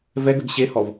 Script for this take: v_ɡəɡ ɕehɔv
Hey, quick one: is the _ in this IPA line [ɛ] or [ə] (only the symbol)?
ɛ